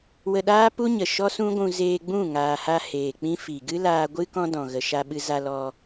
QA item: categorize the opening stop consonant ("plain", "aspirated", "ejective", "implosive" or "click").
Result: implosive